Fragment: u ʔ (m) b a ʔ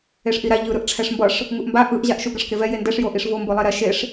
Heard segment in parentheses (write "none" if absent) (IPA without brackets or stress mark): m